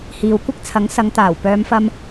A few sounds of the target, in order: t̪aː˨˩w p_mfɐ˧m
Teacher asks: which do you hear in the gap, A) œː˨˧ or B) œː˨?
A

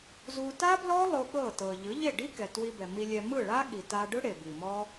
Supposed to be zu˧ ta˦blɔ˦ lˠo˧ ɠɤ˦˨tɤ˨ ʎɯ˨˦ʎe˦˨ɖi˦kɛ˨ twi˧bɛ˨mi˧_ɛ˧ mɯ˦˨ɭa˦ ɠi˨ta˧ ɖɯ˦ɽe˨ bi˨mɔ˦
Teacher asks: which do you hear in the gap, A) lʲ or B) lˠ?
A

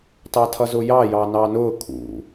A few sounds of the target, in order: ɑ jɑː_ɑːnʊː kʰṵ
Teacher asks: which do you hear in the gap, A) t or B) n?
B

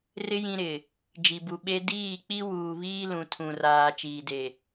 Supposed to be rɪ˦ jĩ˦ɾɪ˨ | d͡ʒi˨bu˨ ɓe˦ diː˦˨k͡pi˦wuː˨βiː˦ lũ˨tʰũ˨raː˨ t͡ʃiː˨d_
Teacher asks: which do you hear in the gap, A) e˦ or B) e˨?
B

